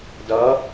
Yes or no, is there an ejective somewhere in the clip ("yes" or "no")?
no